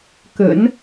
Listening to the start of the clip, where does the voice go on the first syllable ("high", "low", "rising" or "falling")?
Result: low